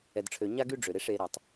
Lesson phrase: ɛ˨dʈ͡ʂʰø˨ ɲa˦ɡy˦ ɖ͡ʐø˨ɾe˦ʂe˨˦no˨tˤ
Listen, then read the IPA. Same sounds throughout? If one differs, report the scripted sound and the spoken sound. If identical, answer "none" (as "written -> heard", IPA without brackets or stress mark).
n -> ɾ